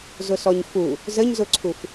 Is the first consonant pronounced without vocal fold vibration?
no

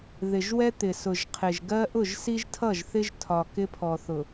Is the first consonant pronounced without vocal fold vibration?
no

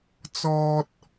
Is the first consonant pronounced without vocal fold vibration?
yes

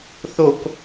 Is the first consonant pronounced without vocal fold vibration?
yes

